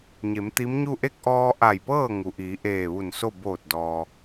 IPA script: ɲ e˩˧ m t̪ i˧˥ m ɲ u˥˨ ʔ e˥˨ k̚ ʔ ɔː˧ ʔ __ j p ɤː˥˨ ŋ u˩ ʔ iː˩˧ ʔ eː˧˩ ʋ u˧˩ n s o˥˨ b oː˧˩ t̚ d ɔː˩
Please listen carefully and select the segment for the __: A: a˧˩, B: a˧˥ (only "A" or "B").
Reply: A